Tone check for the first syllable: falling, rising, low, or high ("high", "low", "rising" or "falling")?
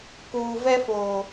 low